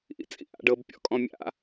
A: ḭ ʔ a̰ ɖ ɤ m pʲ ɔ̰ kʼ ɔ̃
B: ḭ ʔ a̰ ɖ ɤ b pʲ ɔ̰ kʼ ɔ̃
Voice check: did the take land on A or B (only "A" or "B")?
B